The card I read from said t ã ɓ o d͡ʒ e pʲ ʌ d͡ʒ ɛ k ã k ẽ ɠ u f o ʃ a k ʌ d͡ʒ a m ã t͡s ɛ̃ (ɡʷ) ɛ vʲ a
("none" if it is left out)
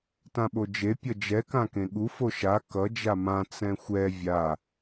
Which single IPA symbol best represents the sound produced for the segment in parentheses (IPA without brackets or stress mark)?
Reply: xʷ